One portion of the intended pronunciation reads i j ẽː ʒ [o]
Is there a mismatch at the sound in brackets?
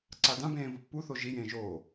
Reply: yes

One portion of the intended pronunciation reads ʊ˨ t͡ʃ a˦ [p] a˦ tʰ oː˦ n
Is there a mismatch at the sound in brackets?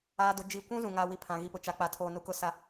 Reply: yes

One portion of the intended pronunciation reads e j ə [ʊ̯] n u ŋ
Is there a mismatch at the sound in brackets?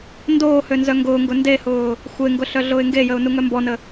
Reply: no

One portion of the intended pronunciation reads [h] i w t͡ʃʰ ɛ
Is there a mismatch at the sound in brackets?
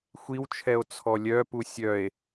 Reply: yes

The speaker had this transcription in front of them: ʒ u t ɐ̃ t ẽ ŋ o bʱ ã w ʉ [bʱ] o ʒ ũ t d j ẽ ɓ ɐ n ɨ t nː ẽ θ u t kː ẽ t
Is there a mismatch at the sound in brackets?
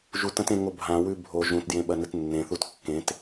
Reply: no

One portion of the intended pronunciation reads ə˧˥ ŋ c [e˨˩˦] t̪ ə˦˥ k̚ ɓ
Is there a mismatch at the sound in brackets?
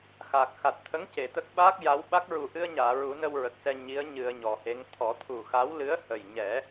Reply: yes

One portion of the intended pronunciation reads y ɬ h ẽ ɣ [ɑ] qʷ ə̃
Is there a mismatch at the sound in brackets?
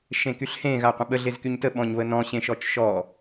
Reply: yes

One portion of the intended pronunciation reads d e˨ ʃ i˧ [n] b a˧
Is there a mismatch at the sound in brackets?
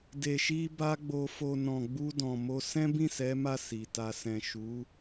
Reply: yes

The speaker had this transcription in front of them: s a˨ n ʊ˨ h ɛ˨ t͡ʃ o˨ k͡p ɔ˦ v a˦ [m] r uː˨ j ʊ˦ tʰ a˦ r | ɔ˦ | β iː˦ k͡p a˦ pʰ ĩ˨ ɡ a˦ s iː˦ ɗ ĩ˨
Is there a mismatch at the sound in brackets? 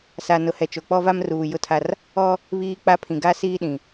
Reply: no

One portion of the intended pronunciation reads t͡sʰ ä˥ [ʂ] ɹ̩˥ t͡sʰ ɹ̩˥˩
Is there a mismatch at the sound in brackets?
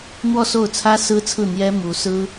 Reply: yes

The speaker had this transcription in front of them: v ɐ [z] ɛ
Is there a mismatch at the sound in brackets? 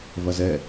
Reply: no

